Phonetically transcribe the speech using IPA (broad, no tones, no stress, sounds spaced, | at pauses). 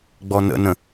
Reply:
ɡ͡b ɔ n ə̰ n ə̃